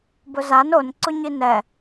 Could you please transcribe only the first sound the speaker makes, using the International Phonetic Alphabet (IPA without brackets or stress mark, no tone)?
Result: b